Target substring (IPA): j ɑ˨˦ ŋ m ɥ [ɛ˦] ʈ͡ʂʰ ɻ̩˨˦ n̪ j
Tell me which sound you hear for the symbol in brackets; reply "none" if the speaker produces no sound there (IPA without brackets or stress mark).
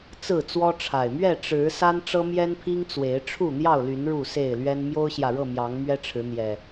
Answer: ɛ˦